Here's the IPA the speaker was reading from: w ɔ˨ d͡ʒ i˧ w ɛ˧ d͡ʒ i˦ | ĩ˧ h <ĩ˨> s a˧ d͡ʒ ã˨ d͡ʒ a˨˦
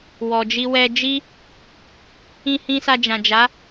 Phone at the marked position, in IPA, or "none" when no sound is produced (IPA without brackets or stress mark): ĩ˧